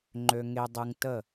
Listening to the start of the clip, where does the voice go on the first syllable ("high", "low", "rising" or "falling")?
low